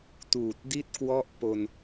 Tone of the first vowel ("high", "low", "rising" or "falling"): low